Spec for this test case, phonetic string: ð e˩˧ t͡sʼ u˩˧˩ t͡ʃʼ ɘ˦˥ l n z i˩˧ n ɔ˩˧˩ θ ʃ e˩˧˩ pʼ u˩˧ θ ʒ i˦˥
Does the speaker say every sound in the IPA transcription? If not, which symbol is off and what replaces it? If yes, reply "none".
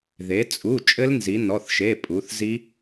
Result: ʒ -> z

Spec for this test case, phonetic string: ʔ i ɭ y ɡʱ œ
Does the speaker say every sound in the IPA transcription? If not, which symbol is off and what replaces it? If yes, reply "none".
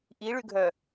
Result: none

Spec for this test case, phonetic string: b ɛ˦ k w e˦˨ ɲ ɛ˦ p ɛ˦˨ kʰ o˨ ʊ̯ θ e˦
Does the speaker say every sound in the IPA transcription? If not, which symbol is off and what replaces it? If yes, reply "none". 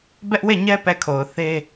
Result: k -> ʔ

